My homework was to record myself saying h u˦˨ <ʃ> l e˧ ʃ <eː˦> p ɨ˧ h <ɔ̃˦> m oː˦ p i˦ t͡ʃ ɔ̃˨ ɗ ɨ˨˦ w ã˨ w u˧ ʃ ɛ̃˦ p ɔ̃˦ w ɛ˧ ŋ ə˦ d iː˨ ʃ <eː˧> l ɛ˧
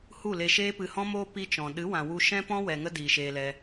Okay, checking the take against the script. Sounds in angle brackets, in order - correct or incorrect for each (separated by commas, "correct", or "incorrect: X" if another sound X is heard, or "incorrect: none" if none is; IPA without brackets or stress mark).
incorrect: none, correct, correct, correct